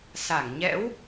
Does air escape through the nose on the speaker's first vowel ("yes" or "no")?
no